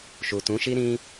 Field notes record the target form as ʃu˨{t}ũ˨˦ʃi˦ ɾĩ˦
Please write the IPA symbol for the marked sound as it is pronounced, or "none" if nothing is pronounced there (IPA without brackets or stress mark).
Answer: t